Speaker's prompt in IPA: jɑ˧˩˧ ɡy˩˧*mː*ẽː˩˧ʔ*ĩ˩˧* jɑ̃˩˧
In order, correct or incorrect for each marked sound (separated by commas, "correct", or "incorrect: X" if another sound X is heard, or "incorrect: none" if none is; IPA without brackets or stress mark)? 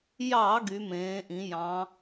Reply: incorrect: m, correct